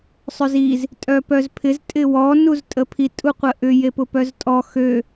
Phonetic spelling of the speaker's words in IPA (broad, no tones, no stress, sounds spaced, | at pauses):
sˤ ø z i z | tʼ œ p œ z pʰ ɪ z tʼ ɪ w ɔ n u z tʼ ə pʰ i tʼ u qʷ ə ʔ ʏ j e p ʊ p œ z tʼ ɔ x ø